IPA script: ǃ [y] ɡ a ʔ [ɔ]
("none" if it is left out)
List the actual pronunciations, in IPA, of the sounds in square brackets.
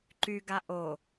y, o

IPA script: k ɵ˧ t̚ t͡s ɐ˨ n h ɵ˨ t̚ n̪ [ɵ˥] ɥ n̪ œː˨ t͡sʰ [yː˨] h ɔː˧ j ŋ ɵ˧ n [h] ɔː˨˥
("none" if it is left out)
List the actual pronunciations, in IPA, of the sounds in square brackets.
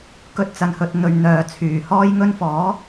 ɵ˨, yː˨˩, f

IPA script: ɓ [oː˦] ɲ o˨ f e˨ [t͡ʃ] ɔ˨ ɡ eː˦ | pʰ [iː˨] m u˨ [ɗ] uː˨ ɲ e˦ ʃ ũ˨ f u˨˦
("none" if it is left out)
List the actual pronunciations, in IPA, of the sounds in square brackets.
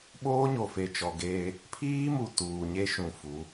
oː˦, t͡ʃ, iː˦, t

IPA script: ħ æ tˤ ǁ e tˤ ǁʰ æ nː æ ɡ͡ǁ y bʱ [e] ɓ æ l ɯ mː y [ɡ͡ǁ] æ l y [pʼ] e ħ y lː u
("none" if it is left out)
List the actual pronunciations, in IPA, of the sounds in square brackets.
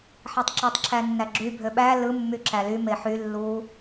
ø, ǁ, m

